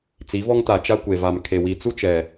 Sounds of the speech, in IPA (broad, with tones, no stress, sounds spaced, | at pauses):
t͡s i˨˦ v ɔ˦ ŋ t a˨ t͡ʃ a˦ kʷ e˨ v a˨ m kʰ e˨ w i˨ t͡s u˦ t͡ʃ ɛ˨